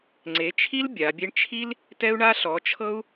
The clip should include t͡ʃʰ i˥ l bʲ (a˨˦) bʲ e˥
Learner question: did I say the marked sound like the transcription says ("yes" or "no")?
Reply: yes